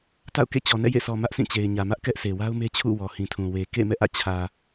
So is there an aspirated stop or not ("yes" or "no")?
yes